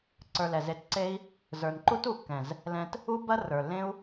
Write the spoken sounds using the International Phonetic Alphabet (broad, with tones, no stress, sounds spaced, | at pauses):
ǀ ə˞˧ l ɛ˨ z e˧ t ǀ e˦ i̯ | z ə˞˨ n ǃ u˦ t u˨ kː ɛ̃˨ z | l ɛ̃˧ t | u˦ b ɐ˦ r ə˞˨ lː ẽ˦ u̯